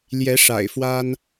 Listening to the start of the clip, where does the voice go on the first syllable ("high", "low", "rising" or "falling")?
rising